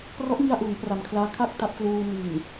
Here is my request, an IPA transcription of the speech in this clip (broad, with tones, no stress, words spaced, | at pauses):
krɔ˦˥ʔŋi˧a̯ʔuː˩˦ŋ pra˨˩mkʰlaː˦˥kʰa˥˩k̚ ta˦˥p̚kluː˧ ni˨˩n